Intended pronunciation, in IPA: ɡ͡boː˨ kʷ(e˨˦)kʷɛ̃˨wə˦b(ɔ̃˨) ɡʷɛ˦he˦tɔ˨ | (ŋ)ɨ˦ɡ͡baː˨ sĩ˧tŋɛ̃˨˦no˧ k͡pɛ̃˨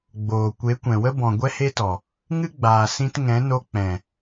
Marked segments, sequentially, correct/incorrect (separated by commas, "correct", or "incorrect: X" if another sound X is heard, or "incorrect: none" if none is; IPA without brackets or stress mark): correct, correct, correct